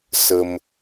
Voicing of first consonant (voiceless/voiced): voiceless